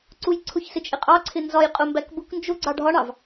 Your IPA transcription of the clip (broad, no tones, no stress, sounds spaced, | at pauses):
ǀ u j ǀʰ ʊ ç s ɪ t͡ʃʼ ɪ qʼ ɑ ǀʰ ɪ n z ɒ j qʼ ʊ m b æ k b ʊ k n d͡ʒ ʊ ɡ͡ǀ ɑ ɖʱ ɒ ɳ ɑ v